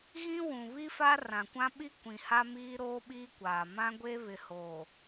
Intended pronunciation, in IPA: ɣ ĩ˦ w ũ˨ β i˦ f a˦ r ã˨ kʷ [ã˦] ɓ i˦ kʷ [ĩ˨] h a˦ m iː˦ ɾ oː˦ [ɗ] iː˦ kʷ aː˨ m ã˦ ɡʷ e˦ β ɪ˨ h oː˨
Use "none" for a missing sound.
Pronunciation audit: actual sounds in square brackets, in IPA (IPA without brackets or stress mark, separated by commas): ã˦, ĩ˨, ɓ